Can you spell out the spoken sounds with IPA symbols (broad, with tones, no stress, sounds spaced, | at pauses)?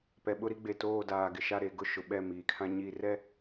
p ɛ˨ ɓ ʊ˦ ɾ i˦ ɡ͡b e˨ t oː˦˨ d aː˨ ɡ ɪ˨ ʃ a˦˨ ɾ e˨ ɡ ʊ˦ ʃ ʊ˨ ɓ ɛ˦˨ m iː˨ kʰ ã˦ ɲ i˦˨ r ɛ˦˨